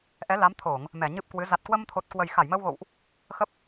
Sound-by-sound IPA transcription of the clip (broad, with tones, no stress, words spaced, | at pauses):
ʔɛ˨˦la˨˦m t̪ʰo˧˩˨ŋ | mɛ˧˩ɲɨ˦˥p̚kwɨ˨˦ za˨˩t̚kwə˧mt̪ʰo˨˩t̚ kwə˨˩jxa˧˩jməː˧wɣo̰˧˨wʔ | xə˦˥p̚